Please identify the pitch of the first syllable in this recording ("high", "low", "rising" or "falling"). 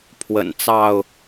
low